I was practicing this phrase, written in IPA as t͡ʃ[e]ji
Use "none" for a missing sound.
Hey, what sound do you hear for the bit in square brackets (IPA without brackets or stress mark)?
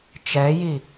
ɛ